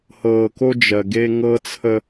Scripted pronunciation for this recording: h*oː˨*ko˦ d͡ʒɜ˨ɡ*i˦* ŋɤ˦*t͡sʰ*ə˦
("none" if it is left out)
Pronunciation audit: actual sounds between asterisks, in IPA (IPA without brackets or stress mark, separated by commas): ɤː˨, e˦, t͡sʰ